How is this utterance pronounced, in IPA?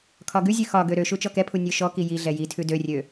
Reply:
kʰ ɒ ɡ ʉ zʲ ʉ x ɒ ɡ ø ɾ ø ʃ u t͡ʃ ɔ k ɛ pʰ u nʲ ø ʃ ɔ k i j i ɮ ɛ j i tʰ ʉ d ø rʲ ø

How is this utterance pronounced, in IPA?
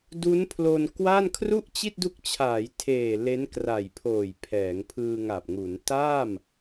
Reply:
d u˦˥ n pʰ l o˧ n k w a˥˩ n kʰ r u˥˩ ʔ t͡ɕ i˥˩ t̚ d u˦˥ k̚ t͡ɕʰ aː˩˦ j tʰ eː˨˩ l e˦˥ n k r a˨˩ j pʰ oː˨˩ j pʰ ɛː˩˦ ŋ pʰ ɯː˧ ŋ a˨˩ p̚ ŋ u˩˦ n t a˥˩ m

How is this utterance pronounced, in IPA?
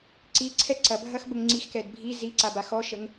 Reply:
ǀ i ǀʰ ɛ ǀ ɐ bʱ ɐ x b ə ŋ ŋ͡ǀ i x k ɛ d bʱ i z i ǀ a b a x ɔ ʃ ə ŋ

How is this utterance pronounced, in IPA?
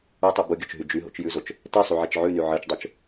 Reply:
u tˤ o b ʊ ɡʲ o t͡ʃ ɦ y d͡ʒ y ɦ o̰ t͡ʃ j ʉ z o t͡ʃ | t ɛ sˤ y ʕ ɛ t͡ʃ ʕ ʉ n y ʕ ɜ t͡ʃ dˤ o t͡ʃ

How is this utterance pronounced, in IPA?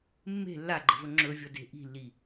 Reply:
mː e̤ lː a ɡ͡ǃ ə̤ v ɵ ŋ͡ǁ ɵ vʲ ʌ d e̤ ʔ i̤ lː i

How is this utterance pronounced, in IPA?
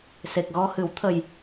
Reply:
s e˨˩ k̚ ɣ ɔ˧ h ɨ˨˩˦ w t̪ʰ ə˨˩ j

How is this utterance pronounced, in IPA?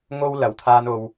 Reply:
ŋ o˥ w l ɐ˨˩ w t̪ʰ aː˧ n o˨ w

